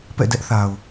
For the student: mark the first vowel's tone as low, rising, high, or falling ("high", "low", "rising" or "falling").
falling